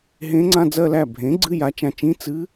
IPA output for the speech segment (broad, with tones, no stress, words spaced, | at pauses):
ɦẽ˧˥ŋ͡ǀã˧˥˧d͡zɜ˥˧læ˥˩ bʱẽ˩˥ɡ͡ǀɨ˧˥˧ ja˩˥t͡ʃã˨t͡ʃĩ˧˥˧ t͡sɨ˧˥